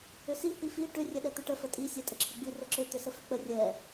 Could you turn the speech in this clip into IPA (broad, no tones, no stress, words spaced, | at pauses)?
ʏsi hifi ʈʏ rʲɛɗɛt̪ʏʈə fətʼi sʲɛtʼəǁʰəɡ͡bi rəǁʏ t̪ʏsəfʏk͡pə rʲɛ